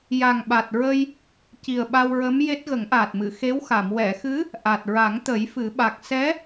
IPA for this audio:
ja˨˩ŋɓa˨˩t̚ɹə˧j | ci˨˩ə̯ɓa˧wɹə˧˥m je˦˥t̚ ɣə˨˩˦ŋʔaː˨˩t̚mɨ˨˩˨ xe˧˥wxa˨˩˨m wɛ˨˩˨xɨ˧˥ | ʔa˨˩t̚ɹa˨˩˦ŋt̪ə˨˩˦j fɨ˨˩˦ɓa˨˩k̚ sɛ˧˥

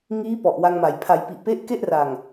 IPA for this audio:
ŋiː˦˥ pɔ˨˩ʔwa˧ŋma˨˩j pʰa˩˦jpi˨˩ʔpe˦˥ʔ ke˥˩ʔra˨˩ŋ

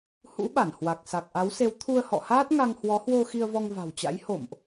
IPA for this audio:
hṵ˧˥ ɓa˧˩nhwa˨˩k̚sa˨˩k̚ʔa˨˦w se˨˦wt̪ʰu˧ə̯hɔ̰˧˨haː˦˥t̚ ŋa˧ŋhwɔ˨˦hwo˧ xi˧ə̯vɔ˧ŋva̤˨˩wt͡ɕa̰˧˥j ho̰˧˨mʔ

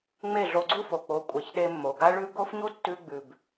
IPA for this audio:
ŋ͡me˦˨ɮo˧ɡ͡ǀu˦ fo˨k͡po˨˦ kʷʼe˨ç ɗe˧mːo˨ɡa˦ɭʉ˦ ɡo˦fɲu˦ tːʉ˧ɡ͡bʉ˨b

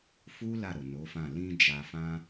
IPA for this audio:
fu˦ la˦˨ɾo˨no˨˦fã˦˨ lĩ˧ d͡ʒa˧fã˦

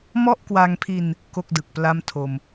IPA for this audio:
mɔ˥˩ʔkwa˧ŋpʰi˧n | ko˥˩k̚dɯ˨˩k̚pla˥˩m tʰo˧m

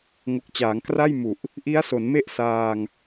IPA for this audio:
ŋo˨˩k̚t͡ɕaː˩˦ŋkra˥˩jmu˨˩ʔ | ʔi˦˥a̯so˩˦nme˥˩ʔ saː˧ŋ

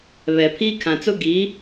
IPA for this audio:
βɛ˨pʰiː˦ kʰã˨t͡sʊ˦ ɡiː˨˦

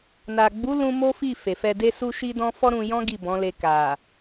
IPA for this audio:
na˨ɡ͡bu˨˦ lũ˧ mo˦fi˦˨ fe˨fɛ˧de˦ su˦ʃi˦ dɔ̃˧ fɔ˦ɾũ˧jɔ̃˦ ɡi˦˨bɔ̃˨˦le˧ ka˨

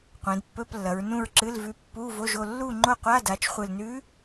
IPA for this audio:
qʷẽ˩˧dpːɵ˧˥˧plːɐ˩˧ɹ nũ˥˨ɹǁɨ˧˥˧lvʉ˧˥ pːu˧˥˧vo˧˥˧ʒo˥˨ lːu˥˨ŋ͡ǃo˥˨qʷa˧˥˧ da˩˧t͡ʃχʷɨ˨˩lnʉ˧˥

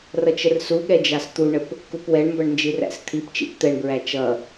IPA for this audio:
rʌt͡ʃərsuɠɛ d͡ʒɑst̪uɳəp | kupwɛɳmbʌɳ nd͡ʒiræ̰st̪ʰipt͡ʃḭp t̪ɛɳbɹæ t͡ʃʌ

